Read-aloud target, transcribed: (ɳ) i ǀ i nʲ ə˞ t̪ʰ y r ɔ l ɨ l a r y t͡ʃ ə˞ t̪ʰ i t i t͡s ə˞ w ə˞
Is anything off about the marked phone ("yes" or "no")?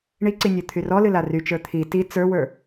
no